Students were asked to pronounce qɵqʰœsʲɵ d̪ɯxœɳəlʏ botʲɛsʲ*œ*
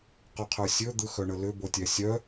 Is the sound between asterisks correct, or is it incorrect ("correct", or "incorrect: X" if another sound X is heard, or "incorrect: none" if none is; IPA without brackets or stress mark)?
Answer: correct